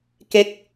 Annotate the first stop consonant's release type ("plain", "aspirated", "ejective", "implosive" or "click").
plain